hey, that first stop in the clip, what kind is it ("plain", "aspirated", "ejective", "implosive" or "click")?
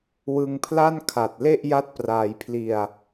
aspirated